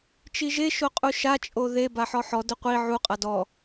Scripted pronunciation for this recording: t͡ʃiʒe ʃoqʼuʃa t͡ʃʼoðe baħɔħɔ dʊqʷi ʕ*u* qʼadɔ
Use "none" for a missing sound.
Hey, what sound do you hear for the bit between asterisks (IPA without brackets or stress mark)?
u